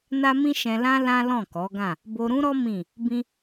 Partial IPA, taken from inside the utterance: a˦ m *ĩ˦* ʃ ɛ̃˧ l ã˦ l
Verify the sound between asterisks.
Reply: correct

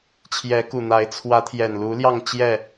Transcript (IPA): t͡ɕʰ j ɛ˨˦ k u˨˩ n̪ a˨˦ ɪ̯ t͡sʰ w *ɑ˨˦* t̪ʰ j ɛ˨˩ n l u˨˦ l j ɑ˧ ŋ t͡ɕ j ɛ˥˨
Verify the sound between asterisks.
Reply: incorrect: ä˨˦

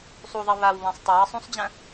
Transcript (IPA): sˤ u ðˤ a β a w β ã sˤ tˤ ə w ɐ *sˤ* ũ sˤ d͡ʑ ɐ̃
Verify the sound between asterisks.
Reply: correct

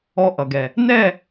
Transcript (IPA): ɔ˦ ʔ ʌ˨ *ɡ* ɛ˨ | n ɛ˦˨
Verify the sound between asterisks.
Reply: correct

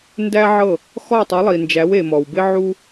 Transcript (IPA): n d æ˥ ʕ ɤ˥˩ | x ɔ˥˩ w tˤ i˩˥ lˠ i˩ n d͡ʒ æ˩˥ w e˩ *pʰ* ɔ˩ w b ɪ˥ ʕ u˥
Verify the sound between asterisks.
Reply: incorrect: m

